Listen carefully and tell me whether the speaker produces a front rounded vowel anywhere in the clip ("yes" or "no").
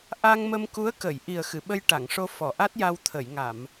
no